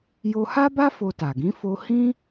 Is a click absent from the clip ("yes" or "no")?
yes